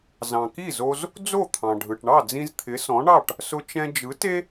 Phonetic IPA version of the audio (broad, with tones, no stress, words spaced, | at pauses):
zɑ̃˩ki˥˩zo˧z | d͡zo˥˩t̪ʰɑ̃˩ɖʱɯ˩ʈɳɑ˥˩ d͡zĩ˧zt̪ʰɪ˩˥sɔ̃˩˥ɳɑ˥˩ʈ | sʊ˧t͡ʃɛ̃˧ d͡ʒɯ˩˥te˥